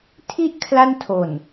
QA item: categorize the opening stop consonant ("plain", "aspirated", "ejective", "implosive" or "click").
aspirated